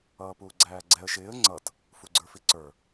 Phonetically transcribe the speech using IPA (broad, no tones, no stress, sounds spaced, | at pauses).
ʌː p uː ɡ͡ǀ æː ɡ͡ǀ ɛ ə̯ ʃ ɪː ə̯ ŋ͡ǀ ʌ t | f u ɡ͡ǀ ə˞ f i ǀ ə˞